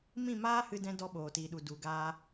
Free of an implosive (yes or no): no